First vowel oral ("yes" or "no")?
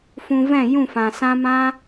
no